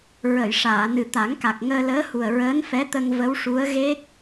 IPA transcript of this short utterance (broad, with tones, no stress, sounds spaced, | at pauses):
ɹ ə˨˩˨ j ʂ aː˨˩˨ n ɨ˨˩ t̪ a˨˩˦ ŋ k a˨˩ k̚ ŋ əː˧ l əː˧˥ h u˨˩ ə̯ ɹ əː˧˥ n f ɛ˧˥ t̪ ə˧ ŋ v ə˧˥ w ʂ u˧˥ ə̯ ɣ e˦˥ k̚